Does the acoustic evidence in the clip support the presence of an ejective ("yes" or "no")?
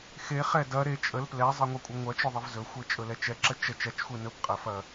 yes